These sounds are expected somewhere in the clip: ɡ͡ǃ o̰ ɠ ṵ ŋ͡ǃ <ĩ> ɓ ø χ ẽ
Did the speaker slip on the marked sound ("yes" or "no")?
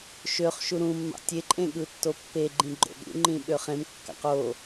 no